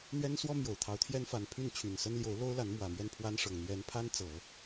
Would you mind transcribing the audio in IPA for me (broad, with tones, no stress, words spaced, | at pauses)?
n̪ɥɛ˥nswɔ˥mjo˨˩ʊ̯t̪ʰɑ˧˥ʊ̯ t̪ʰjɛ˥nfa˧˥n pʰy˥˩nt͡ɕʰy˨˩nsə˥nljo˧˥ʊ̯ lo˥ʊ̯la˧˥n mwä˨˩mɥɛ˥˩npʰwa˥n ʂɤ˨˩ŋ n̪ɥɛ˧˥npʰa˥n t͡sɤ˨˩˦